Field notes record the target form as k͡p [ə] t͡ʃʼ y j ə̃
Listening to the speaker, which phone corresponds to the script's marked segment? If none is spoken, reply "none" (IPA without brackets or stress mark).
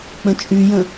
ə̃